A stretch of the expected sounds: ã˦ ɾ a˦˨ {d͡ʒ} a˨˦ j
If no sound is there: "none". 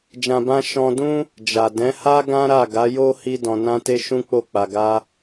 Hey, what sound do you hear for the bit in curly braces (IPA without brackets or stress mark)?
ɡ